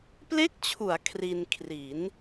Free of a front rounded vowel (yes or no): yes